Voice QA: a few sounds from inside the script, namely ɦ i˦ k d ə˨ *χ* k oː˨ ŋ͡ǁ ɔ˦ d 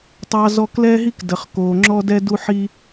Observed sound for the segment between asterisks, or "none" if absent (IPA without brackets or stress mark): χ